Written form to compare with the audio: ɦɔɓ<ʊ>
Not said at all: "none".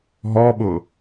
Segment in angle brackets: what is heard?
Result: ʊ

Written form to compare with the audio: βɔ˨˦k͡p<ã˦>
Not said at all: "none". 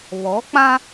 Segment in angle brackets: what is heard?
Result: ã˦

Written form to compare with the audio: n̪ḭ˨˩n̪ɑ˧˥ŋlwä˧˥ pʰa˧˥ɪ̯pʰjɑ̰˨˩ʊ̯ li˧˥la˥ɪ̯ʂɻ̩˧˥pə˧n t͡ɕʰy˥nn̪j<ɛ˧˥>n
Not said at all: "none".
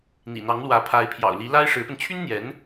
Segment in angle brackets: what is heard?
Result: ɛ˧˥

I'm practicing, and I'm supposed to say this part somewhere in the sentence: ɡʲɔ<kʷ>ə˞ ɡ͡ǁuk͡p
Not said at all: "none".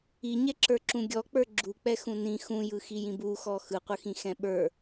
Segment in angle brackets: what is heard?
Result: k͡p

